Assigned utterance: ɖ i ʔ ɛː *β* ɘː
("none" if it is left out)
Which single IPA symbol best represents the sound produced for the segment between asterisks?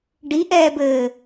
b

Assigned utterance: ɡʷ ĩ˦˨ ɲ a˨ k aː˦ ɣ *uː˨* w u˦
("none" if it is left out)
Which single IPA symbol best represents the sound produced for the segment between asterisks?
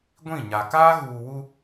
uː˨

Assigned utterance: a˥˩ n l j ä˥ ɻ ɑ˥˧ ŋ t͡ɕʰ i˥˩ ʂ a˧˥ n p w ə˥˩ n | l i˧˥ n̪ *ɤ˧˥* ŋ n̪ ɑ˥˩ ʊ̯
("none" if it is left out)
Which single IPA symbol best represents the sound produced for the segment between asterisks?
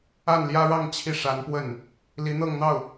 ɤ˥˧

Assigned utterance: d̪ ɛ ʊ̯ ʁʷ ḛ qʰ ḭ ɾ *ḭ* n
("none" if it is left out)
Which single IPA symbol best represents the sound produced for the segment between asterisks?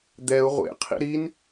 i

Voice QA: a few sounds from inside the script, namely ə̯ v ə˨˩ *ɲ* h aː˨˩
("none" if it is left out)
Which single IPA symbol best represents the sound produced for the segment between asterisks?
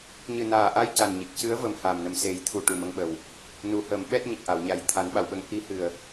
m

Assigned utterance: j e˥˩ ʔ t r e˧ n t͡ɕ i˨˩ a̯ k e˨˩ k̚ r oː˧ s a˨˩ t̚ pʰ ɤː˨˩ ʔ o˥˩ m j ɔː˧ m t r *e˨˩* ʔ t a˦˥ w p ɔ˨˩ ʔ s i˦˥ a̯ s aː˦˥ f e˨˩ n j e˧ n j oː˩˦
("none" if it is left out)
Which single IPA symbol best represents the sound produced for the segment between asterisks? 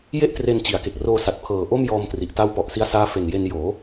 i˨˩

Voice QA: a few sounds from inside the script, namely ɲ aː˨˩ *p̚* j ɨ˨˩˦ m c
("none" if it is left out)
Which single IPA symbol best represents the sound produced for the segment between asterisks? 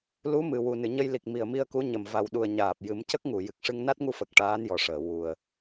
p̚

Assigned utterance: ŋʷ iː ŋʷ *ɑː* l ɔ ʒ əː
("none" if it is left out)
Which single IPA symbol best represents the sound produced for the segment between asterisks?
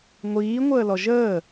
əː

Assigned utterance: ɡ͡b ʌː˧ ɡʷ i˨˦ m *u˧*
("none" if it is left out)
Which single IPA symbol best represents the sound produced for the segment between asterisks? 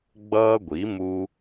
u˧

